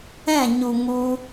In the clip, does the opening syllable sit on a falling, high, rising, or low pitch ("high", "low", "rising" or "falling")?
falling